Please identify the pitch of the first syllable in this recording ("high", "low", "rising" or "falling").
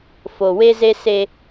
low